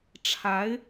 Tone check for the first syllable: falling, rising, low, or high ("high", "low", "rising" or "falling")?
rising